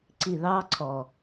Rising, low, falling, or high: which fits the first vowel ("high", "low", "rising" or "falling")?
low